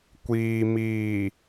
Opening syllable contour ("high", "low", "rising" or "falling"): low